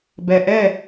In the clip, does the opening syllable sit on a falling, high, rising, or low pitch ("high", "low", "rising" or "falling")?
low